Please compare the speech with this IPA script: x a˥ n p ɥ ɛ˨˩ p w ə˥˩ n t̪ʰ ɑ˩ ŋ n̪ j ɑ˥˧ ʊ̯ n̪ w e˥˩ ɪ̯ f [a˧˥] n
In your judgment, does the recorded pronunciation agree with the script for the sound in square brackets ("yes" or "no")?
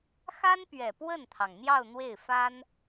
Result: no